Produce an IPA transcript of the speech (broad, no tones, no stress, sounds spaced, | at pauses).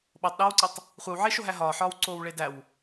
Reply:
ɓ o tˤ ɗ eː w ǀ i tˤ | χʷ e w ʕ e ʃ o ɦ æ ɦ ɒː ħ ɒː w ǀ oː w ɭ e d æ w